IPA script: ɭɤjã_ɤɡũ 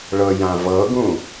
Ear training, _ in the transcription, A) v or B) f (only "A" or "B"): A